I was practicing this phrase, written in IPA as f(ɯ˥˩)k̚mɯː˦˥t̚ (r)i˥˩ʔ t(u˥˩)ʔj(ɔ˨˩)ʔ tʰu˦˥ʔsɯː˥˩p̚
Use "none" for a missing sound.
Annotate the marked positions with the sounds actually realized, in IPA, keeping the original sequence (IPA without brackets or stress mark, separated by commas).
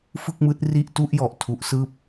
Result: ɯ˥˩, r, u˥˩, ɔ˨˩